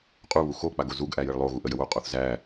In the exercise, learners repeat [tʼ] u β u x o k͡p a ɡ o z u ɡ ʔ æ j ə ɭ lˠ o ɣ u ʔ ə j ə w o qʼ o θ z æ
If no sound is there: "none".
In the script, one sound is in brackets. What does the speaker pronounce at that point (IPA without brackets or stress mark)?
qʼ